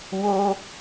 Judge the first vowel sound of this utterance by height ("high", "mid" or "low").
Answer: mid